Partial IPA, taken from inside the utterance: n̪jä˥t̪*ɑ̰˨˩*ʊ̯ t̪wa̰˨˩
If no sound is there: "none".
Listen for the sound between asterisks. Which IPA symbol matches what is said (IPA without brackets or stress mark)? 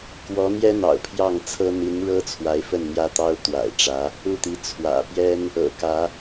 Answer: ɑ˥